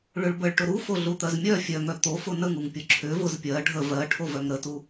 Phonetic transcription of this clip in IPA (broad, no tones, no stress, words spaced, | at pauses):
ɭʏɭbəɭʈʊ ɾufoɮut̪ɜz mʲœ fʲœŋœ t̪ofʊ nəŋuŋ pʲʊǁʰʏ vʊzpʲɜ ɖʱə vɜ ʈʰovœŋɾətu